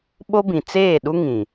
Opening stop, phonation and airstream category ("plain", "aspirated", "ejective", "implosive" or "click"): implosive